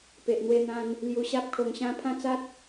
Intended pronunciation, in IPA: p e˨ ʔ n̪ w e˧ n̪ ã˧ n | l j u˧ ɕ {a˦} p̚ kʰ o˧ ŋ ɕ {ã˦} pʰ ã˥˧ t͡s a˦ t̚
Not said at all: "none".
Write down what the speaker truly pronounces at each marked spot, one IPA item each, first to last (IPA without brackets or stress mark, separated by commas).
a˦, ã˦